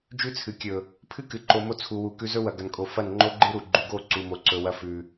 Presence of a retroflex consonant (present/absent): absent